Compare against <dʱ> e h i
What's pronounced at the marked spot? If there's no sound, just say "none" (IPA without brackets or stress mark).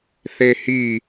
θ